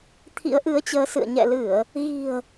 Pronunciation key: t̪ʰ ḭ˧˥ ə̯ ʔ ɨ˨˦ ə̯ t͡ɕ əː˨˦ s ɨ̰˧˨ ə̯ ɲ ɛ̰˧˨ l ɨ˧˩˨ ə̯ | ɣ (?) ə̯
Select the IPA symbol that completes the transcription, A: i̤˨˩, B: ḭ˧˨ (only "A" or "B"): A